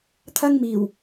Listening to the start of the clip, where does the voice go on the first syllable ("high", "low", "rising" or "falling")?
high